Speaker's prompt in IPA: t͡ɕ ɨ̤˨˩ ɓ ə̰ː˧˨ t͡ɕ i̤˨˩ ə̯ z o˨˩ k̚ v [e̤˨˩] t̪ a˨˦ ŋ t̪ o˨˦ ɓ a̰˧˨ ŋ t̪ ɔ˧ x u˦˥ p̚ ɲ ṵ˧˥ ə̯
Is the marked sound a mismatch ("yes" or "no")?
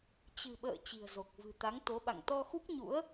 yes